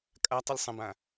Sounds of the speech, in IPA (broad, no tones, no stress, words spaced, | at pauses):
kʼatˤəlʲ sˤə̃bã